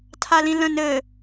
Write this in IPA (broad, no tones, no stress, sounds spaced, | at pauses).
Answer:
tʰ a l ĩ l ə̃ n ɘ